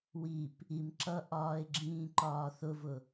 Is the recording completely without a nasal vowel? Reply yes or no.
no